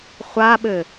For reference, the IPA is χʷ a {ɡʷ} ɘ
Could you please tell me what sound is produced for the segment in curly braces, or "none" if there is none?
ɓ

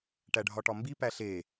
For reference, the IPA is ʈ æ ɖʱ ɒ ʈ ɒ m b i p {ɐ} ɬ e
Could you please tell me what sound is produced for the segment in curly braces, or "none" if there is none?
æ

